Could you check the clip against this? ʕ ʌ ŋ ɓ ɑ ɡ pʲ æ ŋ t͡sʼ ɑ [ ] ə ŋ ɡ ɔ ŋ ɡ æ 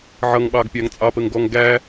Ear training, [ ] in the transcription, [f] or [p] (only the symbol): p